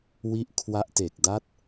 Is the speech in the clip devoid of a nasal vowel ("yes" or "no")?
yes